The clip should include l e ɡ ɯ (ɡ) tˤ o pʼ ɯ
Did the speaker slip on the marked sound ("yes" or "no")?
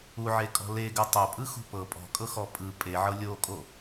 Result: yes